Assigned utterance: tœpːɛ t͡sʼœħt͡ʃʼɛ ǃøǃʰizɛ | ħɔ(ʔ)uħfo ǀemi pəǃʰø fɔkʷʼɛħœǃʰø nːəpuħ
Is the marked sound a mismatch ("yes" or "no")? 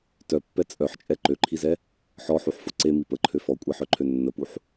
yes